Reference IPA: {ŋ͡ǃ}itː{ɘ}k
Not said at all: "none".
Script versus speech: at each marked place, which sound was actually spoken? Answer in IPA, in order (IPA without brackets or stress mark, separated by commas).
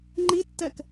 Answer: ŋ͡ǃ, ɛ